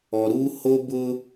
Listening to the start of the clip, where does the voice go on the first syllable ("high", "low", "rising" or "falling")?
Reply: low